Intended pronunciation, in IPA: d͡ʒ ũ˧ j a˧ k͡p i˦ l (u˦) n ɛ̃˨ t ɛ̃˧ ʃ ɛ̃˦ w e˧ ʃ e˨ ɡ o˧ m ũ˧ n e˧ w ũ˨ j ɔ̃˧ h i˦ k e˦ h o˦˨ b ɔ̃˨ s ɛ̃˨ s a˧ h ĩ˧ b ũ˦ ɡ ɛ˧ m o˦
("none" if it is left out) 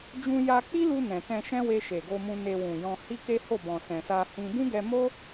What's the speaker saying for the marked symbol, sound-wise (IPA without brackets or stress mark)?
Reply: u˧